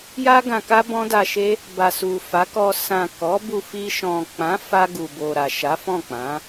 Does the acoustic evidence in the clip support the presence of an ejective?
no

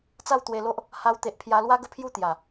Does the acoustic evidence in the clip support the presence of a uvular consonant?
no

